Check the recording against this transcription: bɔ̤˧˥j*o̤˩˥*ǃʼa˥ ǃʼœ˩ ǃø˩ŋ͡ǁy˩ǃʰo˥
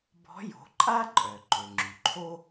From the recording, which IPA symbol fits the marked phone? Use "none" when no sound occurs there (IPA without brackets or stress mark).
o̤˩˥